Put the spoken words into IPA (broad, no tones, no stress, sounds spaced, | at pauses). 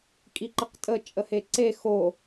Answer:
kʼ i ǃ ə q tʼ ə t͡ʃʼ ə h e ǀ e x o